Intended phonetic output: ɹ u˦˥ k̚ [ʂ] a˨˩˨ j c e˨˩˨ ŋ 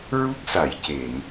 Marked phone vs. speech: incorrect: s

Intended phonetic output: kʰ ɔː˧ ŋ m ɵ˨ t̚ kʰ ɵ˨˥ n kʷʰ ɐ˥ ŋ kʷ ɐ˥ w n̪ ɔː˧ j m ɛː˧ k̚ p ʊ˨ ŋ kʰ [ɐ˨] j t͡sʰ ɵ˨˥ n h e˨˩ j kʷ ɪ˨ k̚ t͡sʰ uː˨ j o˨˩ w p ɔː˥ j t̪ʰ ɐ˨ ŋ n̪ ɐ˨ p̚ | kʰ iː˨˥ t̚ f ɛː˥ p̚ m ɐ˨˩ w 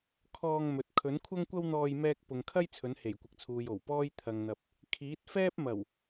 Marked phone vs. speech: incorrect: ɐ˥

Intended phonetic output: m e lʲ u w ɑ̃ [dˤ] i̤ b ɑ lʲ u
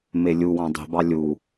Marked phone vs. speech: correct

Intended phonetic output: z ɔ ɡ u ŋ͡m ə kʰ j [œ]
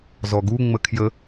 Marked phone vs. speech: incorrect: ə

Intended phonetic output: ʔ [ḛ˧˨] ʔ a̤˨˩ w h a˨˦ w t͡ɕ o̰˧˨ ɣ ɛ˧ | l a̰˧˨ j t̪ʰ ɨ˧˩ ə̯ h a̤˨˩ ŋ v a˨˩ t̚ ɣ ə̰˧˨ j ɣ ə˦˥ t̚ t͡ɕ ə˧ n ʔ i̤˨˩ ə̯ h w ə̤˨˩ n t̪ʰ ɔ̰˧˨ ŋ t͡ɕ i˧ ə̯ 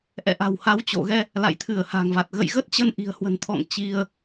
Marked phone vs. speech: incorrect: ɛ̰˧˨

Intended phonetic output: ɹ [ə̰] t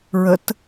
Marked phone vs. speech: incorrect: ə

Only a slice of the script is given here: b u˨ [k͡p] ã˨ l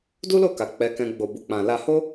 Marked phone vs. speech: correct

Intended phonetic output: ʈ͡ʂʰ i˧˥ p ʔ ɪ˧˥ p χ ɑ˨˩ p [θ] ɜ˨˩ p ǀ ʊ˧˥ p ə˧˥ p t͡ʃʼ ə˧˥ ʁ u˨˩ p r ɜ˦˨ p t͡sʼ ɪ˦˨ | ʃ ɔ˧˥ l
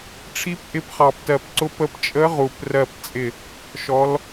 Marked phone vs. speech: incorrect: t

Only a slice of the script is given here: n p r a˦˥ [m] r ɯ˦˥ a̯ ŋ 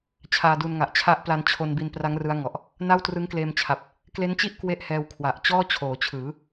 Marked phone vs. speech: incorrect: ŋ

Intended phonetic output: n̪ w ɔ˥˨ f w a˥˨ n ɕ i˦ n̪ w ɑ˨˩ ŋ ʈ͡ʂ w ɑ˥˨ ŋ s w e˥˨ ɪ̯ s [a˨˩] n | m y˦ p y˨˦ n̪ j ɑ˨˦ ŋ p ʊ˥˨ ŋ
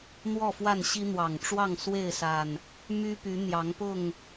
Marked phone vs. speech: correct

